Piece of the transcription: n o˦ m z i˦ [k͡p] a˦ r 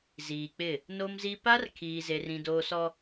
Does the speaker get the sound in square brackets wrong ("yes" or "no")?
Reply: yes